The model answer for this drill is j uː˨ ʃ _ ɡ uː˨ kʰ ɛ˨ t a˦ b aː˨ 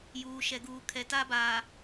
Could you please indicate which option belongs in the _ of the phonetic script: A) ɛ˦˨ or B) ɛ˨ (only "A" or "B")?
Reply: B